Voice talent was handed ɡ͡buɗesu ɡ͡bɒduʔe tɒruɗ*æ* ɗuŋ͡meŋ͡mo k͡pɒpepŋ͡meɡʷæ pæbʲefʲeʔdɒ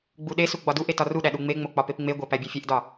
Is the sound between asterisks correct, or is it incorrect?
correct